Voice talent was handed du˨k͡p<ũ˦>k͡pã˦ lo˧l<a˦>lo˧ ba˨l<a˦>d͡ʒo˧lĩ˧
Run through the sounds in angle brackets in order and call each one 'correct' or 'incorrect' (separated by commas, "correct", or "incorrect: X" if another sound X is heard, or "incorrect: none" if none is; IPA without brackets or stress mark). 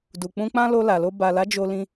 incorrect: ũ˧, incorrect: a˨, incorrect: a˨˦